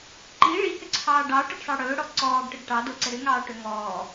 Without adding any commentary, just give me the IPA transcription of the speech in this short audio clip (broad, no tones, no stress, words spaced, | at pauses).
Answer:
ǃi ɭihʏǀʰɑː ɖɑːʈəɖsˤɑ ɽɵːɽɔ ǀɔːɡʈəɡ ʈɑdoǀə ɾʏŋɑːʈɵ ŋɔː